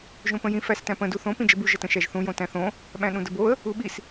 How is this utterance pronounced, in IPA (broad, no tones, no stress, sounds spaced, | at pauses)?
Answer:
ʒ õ p ə̃ j ĩ f æ s t æ̃ p ə̃ d u θ õ p ĩ d͡ʒ ə b u ʒ ə t ə̃ ʃ æ ʒ θ ũ j õ t æ̃ θ õ | ɓ æ̃ ɗ ũ d ə b o ə̯ | u ɓ i s